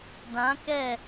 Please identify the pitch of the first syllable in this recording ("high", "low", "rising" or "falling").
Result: rising